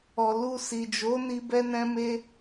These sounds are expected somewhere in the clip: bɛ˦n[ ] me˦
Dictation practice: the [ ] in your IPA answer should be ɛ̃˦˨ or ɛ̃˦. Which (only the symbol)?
ɛ̃˦